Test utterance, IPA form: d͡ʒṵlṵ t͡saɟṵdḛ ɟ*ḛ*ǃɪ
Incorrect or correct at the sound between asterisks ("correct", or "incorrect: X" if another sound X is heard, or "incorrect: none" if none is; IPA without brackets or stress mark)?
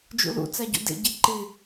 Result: incorrect: e